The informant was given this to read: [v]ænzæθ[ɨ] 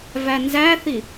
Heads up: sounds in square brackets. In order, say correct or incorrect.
correct, incorrect

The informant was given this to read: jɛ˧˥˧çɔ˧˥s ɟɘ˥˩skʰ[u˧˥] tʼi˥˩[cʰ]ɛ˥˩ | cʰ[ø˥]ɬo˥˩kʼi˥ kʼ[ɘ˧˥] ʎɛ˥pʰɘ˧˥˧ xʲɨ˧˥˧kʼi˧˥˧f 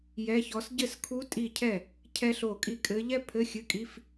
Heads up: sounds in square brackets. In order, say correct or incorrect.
correct, correct, incorrect, correct

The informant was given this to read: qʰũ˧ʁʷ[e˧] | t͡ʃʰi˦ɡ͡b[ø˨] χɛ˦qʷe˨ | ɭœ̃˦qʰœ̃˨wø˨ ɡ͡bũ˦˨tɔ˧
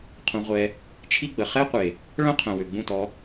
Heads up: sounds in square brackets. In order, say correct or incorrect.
incorrect, incorrect

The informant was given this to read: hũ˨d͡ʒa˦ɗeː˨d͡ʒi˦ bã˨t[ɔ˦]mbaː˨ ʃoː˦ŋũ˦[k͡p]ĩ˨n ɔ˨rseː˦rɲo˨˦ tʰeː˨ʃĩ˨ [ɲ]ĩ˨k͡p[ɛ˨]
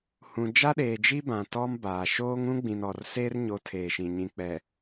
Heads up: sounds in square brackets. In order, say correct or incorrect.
correct, incorrect, correct, correct

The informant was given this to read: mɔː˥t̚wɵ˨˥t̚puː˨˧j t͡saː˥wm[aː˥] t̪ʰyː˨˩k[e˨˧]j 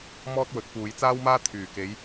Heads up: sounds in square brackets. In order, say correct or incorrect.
correct, correct

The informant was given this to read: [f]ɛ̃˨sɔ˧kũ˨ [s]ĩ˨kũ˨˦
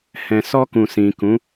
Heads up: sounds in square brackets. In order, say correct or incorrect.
incorrect, correct

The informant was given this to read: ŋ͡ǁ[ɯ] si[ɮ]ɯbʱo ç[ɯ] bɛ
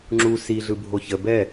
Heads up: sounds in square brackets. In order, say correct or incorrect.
incorrect, correct, incorrect

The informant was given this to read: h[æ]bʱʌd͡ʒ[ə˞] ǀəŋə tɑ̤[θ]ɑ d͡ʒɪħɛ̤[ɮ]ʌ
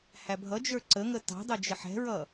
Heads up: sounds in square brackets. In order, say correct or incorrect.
correct, correct, incorrect, incorrect

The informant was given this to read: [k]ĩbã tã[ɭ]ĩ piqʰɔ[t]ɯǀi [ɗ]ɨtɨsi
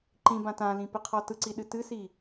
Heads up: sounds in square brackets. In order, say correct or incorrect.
incorrect, incorrect, correct, correct

